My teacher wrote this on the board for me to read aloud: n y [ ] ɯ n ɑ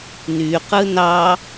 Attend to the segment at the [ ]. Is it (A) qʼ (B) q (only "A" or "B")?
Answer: B